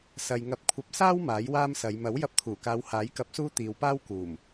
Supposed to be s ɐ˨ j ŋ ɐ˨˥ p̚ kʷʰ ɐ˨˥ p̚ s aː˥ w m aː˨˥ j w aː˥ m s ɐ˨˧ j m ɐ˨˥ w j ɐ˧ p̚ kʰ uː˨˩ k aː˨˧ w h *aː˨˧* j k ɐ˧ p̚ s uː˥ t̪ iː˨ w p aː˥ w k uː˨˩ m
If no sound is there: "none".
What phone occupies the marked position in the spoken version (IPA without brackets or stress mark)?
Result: aː˨˥